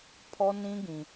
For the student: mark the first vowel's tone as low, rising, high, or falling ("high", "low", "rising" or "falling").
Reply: high